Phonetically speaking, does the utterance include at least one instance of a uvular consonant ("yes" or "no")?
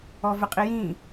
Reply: yes